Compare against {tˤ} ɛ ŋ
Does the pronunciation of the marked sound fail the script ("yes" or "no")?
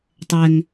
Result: no